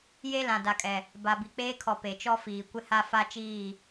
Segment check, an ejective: present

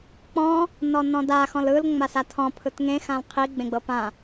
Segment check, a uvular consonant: present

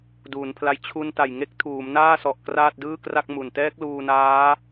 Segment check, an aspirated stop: present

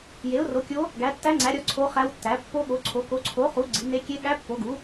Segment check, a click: present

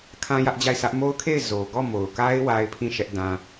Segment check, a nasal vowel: present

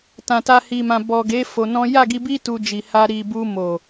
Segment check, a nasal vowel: present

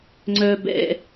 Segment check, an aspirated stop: absent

